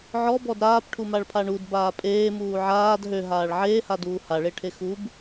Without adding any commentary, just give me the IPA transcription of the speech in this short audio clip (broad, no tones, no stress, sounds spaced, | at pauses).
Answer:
ʕ ɔ b ɔ d ɾ aː p ʈʰ u m a ɭ pʰ a ɳ u d b aː pʼ eː m uː ʕ aː d ɦ ø ɦ aː ɭ ʕ eː h a d uː h a ɭ e ʈʰ e x u b